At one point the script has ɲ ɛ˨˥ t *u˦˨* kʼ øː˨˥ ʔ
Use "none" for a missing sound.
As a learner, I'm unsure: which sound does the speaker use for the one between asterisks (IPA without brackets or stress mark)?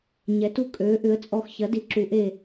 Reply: u˦˨